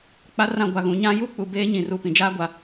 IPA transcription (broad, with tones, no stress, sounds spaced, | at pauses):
k͡p a˦ r ã˦˨ ɡʷ a˨ ɣ ũ˨ ɲ ã˦ j u˦ k͡p u˨ b eː˦ ɲ ĩ˨ r u˨ p ĩ˨ d͡ʒ aː˦ ɡʷ a˨